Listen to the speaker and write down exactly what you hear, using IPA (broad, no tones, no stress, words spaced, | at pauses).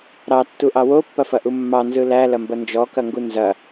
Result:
ɾɑtːuʔɑ wopːɐfɐʔu mːɑnzɯ lælɐmbɐ nd͡ʒɔkɐŋɡu nzɐ